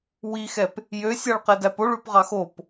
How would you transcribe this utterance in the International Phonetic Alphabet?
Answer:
w i x ɛ p | j ø sʲ ɑ ɭ q ɛ d æ p o ɭ ʉ p ʁ ɑ x o p

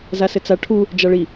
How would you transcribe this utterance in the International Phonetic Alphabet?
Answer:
z a s ɘ t͡s a ʈʰ u | d͡ʒ a ɭ i

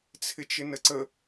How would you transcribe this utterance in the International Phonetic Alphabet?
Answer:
t͡sʰ ɪ t͡ʃ ɪ n ə ǀ ə

